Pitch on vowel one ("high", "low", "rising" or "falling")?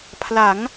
rising